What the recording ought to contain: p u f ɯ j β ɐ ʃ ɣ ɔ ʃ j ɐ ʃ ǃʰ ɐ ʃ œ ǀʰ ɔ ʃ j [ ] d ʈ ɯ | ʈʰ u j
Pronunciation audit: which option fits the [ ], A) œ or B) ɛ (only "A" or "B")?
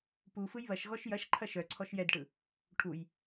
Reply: B